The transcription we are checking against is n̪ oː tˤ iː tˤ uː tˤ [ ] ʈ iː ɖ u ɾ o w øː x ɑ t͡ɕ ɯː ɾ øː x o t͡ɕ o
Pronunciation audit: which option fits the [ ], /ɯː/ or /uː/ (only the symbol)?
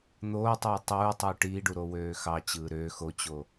uː